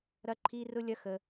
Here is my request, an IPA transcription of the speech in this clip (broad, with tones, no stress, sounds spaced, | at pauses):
ɾ ɐ˦ ǃʰ i˦ r ʊ˦ lʲ ɐ˦ x ə˦